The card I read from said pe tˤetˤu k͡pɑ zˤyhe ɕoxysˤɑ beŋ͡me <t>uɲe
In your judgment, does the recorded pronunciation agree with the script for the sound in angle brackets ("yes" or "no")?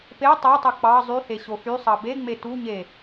yes